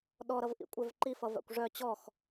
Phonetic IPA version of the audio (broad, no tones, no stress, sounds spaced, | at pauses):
ɗ ɔ ɾ ʌ v ʔ ḭ kʷʼ œ v ǃ i f ʌ v a̰ kʷ ʐ œ t͡ɕ ɔ x